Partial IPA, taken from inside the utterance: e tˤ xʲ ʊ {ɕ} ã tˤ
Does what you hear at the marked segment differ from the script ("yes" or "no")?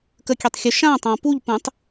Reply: yes